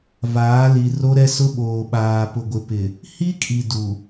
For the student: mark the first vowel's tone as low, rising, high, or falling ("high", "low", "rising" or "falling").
rising